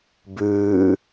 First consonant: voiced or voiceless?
voiced